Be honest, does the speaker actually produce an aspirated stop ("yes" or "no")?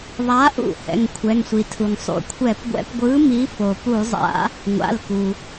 yes